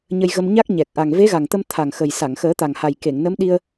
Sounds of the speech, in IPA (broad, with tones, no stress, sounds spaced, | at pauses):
ɲ ə˧ j ɣ ə˧ m ɲ a˦˥ k̚ ɲ ɛ˨˩ k̚ ʔ a˨˩ ŋ v e˧˥ ɣ a˨˩ ŋ t̪ ə˧ m t̪ʰ a˨˩ ŋ x ə˨˩ j s a˨˩˨ ŋ x əː˨˩˦ t̪ a˨˩ ŋ h a˨˩ j k e˨˩˨ ŋ n ə˧˥ m ɗ i˧ ə̯